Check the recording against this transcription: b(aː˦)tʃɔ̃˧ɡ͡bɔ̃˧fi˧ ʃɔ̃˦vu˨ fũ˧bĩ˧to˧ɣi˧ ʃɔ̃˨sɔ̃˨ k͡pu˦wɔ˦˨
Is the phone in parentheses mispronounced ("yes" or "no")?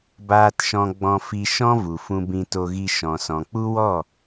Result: yes